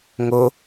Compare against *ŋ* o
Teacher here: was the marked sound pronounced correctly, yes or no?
yes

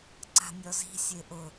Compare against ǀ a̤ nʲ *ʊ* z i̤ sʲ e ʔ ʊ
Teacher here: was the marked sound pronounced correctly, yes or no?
no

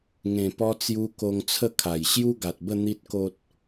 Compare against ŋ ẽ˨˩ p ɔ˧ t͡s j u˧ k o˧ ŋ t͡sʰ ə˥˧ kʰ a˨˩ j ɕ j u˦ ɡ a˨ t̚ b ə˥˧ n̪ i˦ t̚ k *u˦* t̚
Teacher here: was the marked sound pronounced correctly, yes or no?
no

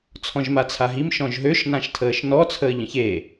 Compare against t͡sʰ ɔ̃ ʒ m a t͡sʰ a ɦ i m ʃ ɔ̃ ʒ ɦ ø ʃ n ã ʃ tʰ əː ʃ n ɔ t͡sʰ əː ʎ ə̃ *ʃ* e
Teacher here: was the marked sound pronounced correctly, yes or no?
no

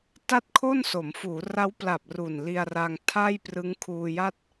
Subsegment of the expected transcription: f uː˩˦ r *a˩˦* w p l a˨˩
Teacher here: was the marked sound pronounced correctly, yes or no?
no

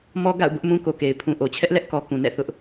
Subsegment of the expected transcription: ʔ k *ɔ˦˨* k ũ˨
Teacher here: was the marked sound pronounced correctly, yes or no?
no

